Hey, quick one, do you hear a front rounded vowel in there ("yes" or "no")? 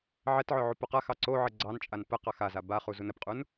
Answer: yes